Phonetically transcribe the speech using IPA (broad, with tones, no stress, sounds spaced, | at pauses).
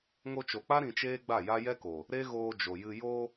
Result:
ŋ o˧ t͡ʃ o˨ k͡p a˦ ɾ ĩ˧ t͡ʃ eː˦ ɡ͡b a˦˨ j a˦ j ɛ˦ k o˨ | ɾ e˦ ɣ oː˧ d͡ʒ o˨ j ɨ˧ j o˧